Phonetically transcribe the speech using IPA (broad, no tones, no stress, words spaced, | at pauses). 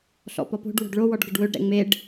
ɬɔ̰pɔpo̤ɖ wo̤ɖɭo wɔɖɡɘɖwɵɖ ɾɛ̰ŋ͡meɖ